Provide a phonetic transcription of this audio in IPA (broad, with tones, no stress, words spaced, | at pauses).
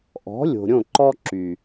ʔɔ̤˨˦lʲo̤˨ɾʲõ˦˨ ǃɔ˦ǁy˨